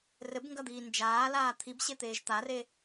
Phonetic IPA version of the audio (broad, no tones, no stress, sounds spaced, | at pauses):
r ɘ b ŋ ɡ ɐ d̪ iː n d͡ʒ aː l aː t̪ʰ i b ɕ e t̪ eː ʒ t̪ a r e